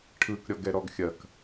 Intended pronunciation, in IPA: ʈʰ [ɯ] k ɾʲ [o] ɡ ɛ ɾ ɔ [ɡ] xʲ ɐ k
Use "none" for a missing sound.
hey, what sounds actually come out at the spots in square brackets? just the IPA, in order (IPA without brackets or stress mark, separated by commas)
ɯ, ɔ, ɡ